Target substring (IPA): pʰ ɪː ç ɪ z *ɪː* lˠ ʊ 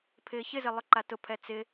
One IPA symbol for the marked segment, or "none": ɪ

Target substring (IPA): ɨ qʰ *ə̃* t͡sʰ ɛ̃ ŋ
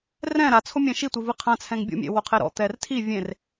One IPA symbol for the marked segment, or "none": ã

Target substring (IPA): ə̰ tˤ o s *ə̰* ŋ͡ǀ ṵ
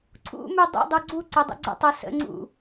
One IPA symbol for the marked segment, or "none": ə̰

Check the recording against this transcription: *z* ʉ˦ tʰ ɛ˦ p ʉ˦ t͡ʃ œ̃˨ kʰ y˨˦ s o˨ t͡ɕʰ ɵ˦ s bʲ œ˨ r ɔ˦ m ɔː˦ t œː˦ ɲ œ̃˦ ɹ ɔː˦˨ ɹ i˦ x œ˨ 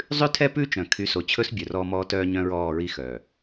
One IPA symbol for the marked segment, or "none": zˤ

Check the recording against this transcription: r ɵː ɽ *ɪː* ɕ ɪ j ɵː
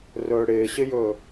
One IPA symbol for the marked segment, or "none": ɪː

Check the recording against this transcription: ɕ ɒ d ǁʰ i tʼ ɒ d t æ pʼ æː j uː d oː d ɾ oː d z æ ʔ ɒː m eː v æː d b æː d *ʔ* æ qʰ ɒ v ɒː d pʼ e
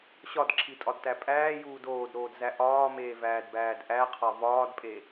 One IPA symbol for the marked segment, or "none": ʔ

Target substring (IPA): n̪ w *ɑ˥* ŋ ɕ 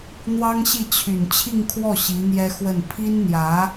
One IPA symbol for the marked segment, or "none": ɑ˥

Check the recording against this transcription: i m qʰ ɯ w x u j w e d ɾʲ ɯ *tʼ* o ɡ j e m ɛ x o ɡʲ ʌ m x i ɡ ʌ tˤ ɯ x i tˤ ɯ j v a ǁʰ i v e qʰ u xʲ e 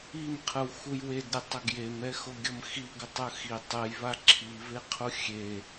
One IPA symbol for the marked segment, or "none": tˤ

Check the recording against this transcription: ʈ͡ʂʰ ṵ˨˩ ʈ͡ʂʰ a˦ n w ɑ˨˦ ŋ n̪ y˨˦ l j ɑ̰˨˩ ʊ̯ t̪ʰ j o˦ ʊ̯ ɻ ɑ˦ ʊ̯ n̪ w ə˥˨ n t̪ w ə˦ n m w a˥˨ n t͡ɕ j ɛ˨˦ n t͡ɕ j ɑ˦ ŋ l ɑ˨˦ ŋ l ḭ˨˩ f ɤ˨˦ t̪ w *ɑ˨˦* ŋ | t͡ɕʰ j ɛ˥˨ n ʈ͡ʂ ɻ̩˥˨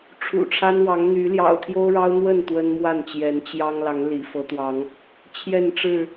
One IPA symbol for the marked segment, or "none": ɑ˨˦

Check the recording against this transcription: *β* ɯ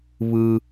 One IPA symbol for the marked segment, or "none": β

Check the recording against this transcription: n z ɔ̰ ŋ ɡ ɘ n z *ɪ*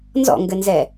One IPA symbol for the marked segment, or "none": ɛ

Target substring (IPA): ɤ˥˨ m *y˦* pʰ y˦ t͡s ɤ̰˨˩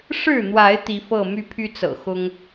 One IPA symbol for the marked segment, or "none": y˦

